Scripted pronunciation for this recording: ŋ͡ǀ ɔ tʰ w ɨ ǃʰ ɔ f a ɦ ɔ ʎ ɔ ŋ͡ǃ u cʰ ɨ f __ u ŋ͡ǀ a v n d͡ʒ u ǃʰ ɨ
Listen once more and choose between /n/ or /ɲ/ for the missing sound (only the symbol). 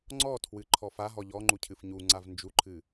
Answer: ɲ